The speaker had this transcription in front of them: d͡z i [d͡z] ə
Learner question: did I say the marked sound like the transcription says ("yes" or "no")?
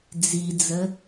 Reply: yes